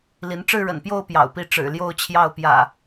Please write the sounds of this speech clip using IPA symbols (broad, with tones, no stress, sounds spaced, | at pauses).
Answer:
l i˨˦ n ʈ͡ʂ ɻ̩˥˨ ɻ ə̰˨˩ n p j o˥˨ ʊ̯ p j ɑ̰˨˩ ʊ̯ p i˥˨ ʈ͡ʂ ɻ̩˨˩ l j o˥˨ ʊ̯ t͡ɕʰ j ɑ˥˨ ʊ̯ p j ä̰˨˩